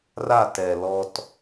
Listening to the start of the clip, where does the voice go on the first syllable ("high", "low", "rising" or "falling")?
falling